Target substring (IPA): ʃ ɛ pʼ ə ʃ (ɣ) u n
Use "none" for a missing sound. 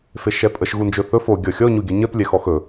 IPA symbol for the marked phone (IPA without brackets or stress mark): ɣ